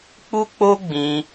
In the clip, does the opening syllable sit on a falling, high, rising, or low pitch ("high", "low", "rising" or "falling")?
high